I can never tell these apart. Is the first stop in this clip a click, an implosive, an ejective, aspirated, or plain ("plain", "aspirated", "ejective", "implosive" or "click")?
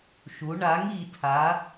aspirated